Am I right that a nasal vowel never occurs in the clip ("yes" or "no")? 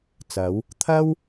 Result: yes